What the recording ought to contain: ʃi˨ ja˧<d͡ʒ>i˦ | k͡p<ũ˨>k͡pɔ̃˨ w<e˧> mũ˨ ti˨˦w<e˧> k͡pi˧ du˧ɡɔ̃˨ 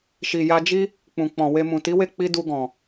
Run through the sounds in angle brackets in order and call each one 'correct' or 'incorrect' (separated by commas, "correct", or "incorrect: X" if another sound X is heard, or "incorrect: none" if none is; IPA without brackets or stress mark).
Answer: correct, correct, correct, incorrect: e˦˨